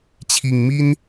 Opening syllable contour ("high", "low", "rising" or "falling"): low